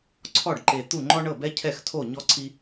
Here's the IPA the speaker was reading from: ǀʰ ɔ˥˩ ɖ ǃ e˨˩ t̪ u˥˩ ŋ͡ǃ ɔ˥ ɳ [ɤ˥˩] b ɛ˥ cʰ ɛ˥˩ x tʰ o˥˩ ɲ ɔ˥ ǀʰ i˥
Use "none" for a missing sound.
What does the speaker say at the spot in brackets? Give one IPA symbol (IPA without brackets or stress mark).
ɤ˥˩